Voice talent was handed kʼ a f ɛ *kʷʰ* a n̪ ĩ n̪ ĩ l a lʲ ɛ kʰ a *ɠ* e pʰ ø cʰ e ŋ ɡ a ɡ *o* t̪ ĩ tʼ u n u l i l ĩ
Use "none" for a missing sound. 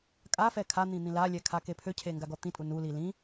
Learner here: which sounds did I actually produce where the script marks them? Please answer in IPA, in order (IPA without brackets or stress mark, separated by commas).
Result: kʰ, k, ɔ